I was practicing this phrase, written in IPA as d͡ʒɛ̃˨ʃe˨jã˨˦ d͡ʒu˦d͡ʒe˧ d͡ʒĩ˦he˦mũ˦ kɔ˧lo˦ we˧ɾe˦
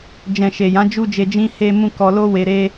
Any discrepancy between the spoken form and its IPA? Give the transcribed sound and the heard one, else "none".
none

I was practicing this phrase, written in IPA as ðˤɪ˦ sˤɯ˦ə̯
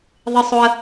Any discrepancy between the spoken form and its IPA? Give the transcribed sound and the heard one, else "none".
ɯ˦ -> ʊ˦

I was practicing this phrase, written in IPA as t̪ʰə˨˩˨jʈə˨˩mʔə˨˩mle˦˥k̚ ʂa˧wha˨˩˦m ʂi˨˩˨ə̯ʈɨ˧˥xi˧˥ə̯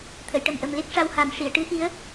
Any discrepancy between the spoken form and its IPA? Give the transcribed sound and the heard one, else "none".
none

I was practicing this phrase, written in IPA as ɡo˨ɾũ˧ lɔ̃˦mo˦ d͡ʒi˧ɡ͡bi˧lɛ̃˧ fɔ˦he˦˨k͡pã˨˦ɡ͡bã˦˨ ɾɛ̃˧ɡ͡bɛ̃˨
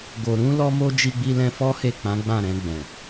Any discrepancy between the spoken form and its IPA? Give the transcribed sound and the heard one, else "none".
ɔ̃˦ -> ɔ˦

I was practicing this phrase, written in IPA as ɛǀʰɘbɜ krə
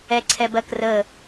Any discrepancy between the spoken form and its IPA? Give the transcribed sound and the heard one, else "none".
ɘ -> ɛ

